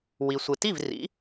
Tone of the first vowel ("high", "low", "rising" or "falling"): low